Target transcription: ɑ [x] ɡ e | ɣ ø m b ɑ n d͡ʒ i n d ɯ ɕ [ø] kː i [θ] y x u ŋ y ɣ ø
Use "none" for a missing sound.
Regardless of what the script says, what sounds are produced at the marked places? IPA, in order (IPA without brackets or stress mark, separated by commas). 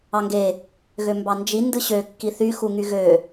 ŋ, ø, θ